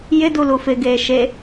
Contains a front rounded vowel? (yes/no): no